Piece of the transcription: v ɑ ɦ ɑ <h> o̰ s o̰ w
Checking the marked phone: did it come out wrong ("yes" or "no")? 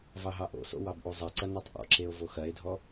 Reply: yes